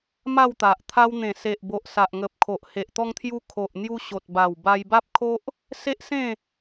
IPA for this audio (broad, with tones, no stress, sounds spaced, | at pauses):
m a˥˧ w t̪ a˨ ʔ t̪ʰ a˧ w n̪ ẽ˨˩ s e˨ ʔ b o˨ ʔ s a˨ ʔ ŋ ə˨ p̚ kʰ o˨ ʔ h e˨ ʔ t̪ ɔ˧ ŋ t̪ʰ j u˧ kʰ o˨ ʔ n̪ j u˧ ɕ o˨ t̚ b a˨˩ w b a˧ j b a˦ p̚ kʰ o˦ ʔ | s e˦ ʔ s ẽ˥˧